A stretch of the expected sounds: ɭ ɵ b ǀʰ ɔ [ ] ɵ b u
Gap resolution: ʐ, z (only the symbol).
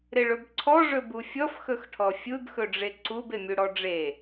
ʐ